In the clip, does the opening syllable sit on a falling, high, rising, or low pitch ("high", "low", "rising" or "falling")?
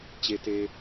low